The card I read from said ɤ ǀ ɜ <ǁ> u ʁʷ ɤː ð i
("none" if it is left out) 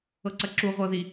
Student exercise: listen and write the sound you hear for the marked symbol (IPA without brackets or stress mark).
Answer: ǁ